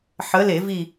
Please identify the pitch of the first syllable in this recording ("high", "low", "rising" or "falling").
rising